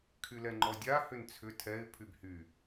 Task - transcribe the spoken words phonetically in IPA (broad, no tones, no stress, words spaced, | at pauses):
kʰylɛŋ͡ǃɔdʲa hʏnt͡sʰʏ tʰɛɪ̯ pʰybhy